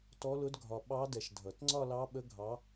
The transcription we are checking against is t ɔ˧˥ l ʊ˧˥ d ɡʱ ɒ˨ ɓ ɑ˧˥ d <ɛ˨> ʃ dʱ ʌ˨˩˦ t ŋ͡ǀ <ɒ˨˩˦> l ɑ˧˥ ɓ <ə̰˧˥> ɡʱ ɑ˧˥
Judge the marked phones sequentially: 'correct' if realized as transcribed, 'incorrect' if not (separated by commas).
correct, incorrect, incorrect